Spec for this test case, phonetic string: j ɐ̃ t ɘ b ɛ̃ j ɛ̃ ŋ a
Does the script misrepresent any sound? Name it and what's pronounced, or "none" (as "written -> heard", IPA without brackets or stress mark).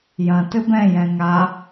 none